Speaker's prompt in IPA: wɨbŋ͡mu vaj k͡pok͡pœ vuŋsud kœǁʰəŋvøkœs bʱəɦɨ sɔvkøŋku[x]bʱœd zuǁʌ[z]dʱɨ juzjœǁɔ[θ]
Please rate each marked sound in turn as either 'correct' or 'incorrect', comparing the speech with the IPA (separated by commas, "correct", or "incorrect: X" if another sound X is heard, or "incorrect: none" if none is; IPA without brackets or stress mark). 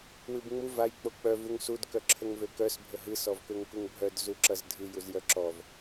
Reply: incorrect: ŋ, correct, incorrect: v